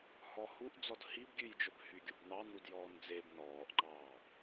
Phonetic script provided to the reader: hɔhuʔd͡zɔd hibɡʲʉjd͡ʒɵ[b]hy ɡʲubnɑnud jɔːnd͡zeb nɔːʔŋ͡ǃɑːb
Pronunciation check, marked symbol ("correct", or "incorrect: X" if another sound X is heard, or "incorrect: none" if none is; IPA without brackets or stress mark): correct